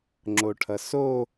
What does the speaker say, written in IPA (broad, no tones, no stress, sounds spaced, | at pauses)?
ŋ͡ǁ o ʈʰ ʌ s o